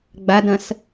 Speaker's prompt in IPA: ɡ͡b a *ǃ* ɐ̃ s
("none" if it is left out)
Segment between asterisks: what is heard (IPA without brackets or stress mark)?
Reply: d